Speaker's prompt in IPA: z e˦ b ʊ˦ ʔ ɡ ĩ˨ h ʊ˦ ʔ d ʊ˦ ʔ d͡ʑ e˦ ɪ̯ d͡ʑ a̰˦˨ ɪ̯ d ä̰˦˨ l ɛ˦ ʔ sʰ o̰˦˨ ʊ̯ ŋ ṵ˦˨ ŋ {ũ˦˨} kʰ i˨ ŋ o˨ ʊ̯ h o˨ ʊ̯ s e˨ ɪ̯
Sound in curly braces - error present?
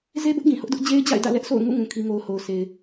yes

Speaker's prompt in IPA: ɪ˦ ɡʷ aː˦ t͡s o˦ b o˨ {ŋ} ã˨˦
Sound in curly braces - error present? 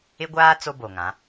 no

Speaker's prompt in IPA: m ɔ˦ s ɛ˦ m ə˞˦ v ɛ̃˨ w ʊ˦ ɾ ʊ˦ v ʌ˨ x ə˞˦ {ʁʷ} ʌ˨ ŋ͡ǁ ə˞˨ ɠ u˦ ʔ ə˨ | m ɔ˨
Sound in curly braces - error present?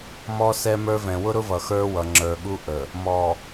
yes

